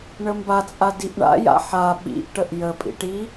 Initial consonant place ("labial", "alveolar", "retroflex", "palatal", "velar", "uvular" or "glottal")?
retroflex